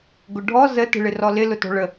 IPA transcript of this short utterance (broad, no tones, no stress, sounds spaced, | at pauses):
ɡ ʊ ɖʱ ɔ z ə t ə̤ ɭ ɪ r ɔ l ɪ l ʊ t ɔ̤ ɭ ə